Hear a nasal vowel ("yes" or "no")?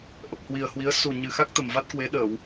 no